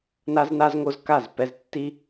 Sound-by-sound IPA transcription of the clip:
n a˦ z n a˦ z ŋ o˦ z k a˦˨ z p ɛ˦ z tː i˦

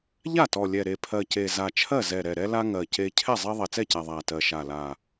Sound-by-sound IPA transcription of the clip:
ʎ a˥˩ t ɔ˨˩ lʲ ɛ˨˩ ɾ e˨˩ pʰ ɜ˨˩ c e˨˩ z a˨˩ t͡ʃʰ ɜ˥˩ z ɛ˨˩ ɾ ɛ˨˩ ɾ ɛ˦ l a˦ ŋ ɜ˨˩ c e˦ cʰ ɛ˥˩ zˤ e˦ ðˤ ɛ˨˩ t͡s ɛ˥˩ c a˨˩ ðˤ a˨˩ t ɜ˨˩ ʃ a˨˩ l a˨˩

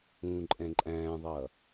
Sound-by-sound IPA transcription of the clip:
ũː ǃʼ ɛ̃ ǃʼ æ̃ː ðˤ ʌː

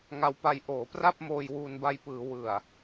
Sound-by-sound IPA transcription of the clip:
ŋ a˧ w p a˧ j ʔ oː˩˦ p r a˥˩ p̚ m oː˧ j w uː˧ n b a˧ j p ɯː˩˦ w ɯ˨˩ a̯

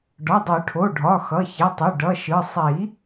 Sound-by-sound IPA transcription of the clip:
ɖ ɒ˩˧˩ dˤ o˨˩˦ ʈʰ o˩˧˩ ɖʱ ɒ˩˧˩ x ʌ˩˧˩ ç e˩˧˩ tˤ u˩˧˩ ɖ ʌ˩˧˩ ʃ ɯ˩˧˩ sˤ i˨˩˦

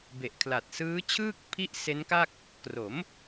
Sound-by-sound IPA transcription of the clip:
b e˨˩ ʔ kʰ l a˨˩ t̚ s ɯː˦˥ t͡ɕʰ ɯː˥˩ k̚ pʰ i˥˩ ʔ s e˦˥ n k a˥˩ k̚ | k r o˩˦ m

